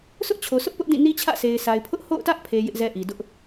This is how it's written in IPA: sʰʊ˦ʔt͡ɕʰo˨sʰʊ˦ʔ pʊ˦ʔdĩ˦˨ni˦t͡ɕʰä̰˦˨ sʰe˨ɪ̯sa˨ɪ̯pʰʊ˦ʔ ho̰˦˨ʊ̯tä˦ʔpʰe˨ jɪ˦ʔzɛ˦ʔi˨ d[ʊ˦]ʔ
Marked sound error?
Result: no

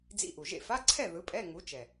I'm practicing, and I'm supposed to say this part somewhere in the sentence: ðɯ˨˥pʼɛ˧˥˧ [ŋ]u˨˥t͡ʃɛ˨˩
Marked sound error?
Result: no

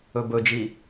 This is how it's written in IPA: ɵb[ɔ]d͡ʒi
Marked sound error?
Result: yes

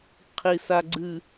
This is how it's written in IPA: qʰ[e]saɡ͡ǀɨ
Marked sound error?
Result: yes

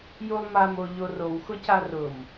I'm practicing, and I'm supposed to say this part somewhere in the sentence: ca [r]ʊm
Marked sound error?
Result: no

